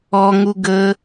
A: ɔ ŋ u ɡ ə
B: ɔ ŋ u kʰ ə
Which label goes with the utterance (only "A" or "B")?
A